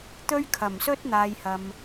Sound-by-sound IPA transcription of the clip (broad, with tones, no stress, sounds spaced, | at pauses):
t̪ ɵ˥ ɥ kʰ ɐ˨˩ m s ɵ˥ t̚ n̪ aː˨ j h ɐ˨ m